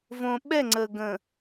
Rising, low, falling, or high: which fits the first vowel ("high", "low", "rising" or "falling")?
low